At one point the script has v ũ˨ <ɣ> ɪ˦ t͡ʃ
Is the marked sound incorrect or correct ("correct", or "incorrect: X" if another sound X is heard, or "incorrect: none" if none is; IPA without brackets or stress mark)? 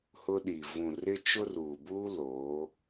incorrect: r